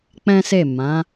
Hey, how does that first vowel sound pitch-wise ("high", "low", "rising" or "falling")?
high